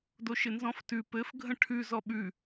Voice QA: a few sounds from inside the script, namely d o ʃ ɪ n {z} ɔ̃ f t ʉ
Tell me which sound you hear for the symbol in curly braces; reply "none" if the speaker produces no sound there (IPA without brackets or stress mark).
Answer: z